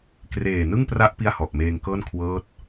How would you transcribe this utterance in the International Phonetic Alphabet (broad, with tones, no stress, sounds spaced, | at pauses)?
k r eː˨˩ n ɯ˥˩ ŋ p r a˦˥ ʔ p i˥˩ a̯ h ɔ˨˩ ʔ m eː˧ ŋ k ɤː˥˩ n kʰ w ɤː˦˥ t̚